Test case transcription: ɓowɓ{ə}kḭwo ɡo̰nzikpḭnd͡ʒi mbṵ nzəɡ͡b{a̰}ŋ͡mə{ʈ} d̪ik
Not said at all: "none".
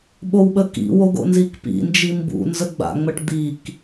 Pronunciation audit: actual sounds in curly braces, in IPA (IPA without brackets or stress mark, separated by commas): ə, a̰, ʈ